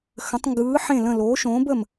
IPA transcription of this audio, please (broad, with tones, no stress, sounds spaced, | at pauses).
x ə̃˨˥ tˤ ŋ ɡ ɯː˨˥ ħ ẽ˥˨ l ə̃˥˨ l oː˨˥ ʃ õː˨˥ b ə˥˨ m